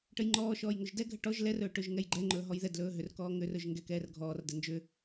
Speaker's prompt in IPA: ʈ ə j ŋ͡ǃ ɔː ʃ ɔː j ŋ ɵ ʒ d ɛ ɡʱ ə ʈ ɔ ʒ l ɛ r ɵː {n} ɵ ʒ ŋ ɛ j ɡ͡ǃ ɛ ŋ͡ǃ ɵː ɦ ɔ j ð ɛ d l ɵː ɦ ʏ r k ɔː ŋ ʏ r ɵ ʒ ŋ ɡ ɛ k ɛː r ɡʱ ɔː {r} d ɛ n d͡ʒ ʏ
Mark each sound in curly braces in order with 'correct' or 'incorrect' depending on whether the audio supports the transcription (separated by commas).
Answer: incorrect, correct